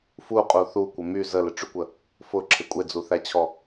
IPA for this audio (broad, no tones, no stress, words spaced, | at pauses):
fuqʼu θukʷɪ my zəlɪʈ͡ʂykʷə | fʊǁʰɪ kʷʼed͡zuθæt͡ɕʰɔ